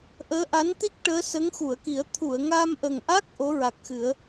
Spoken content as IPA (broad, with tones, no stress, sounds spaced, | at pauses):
ʔ əː˧˥ ʔ a˧˥ n t̪ i˦˥ k̚ ʈ əː˧˥ s ə˧˥ ŋ x u˨˩˨ ə̯ k i˨˩˦ ə̯ t̪ʰ u˨˩˨ ə̯ ŋ a˧ m ʔ ə˨˩ ŋ ʔ a˦˥ k̚ ʔ o˧˥ ɹ a˨˩ k̚ x ɨ˨˩˦ ə̯